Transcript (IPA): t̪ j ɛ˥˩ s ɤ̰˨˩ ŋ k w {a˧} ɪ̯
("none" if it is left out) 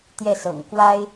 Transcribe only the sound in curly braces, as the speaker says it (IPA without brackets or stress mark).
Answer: a˥